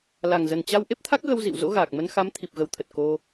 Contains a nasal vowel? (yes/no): no